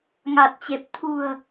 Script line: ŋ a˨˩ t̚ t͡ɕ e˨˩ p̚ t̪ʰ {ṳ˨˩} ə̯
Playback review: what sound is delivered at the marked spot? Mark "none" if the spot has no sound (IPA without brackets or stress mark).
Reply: ṳ˨˩